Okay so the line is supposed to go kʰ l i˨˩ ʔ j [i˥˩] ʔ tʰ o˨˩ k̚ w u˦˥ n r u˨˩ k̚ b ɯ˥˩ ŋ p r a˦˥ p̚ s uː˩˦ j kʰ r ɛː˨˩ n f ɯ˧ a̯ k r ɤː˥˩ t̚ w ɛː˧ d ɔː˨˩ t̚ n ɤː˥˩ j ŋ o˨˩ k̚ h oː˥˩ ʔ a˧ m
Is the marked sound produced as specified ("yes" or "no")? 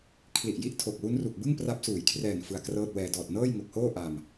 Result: yes